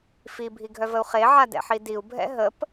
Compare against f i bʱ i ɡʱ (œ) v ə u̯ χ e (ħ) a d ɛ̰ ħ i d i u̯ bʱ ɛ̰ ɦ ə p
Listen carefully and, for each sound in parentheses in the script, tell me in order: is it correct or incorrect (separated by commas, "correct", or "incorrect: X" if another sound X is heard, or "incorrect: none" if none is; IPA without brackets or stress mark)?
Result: correct, incorrect: ʕ